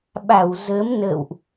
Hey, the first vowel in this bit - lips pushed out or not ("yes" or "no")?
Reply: no